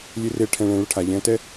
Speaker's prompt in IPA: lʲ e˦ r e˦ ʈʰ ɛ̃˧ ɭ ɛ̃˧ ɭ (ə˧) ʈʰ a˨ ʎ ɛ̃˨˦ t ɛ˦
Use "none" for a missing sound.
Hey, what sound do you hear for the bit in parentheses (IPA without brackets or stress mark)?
ə˧